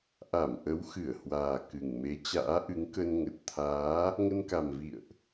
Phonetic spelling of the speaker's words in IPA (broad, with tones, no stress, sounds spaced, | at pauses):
ʔ a˧˩ m ʔ ə˨˦ w x ɨ˧˩ ə̯ h w aː˨˩ k ɨ˨˩ ŋ m e˨˦ t͡ɕ a̰ː˧˥ ʔ ɨ˨˦ ŋ k ə˧ n ŋ ə˨˩ t̚ t̪ʰ aː˨˦ | ŋ ə˧ n k a˨˩ m v ḭ˧˨ ə̯ ʔ